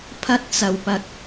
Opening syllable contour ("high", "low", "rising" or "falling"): high